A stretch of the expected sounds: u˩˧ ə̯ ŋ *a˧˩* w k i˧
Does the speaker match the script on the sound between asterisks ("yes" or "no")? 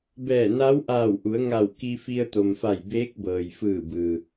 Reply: yes